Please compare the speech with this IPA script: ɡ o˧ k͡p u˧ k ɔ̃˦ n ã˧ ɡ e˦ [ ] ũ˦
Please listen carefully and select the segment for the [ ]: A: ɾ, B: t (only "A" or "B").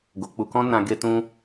B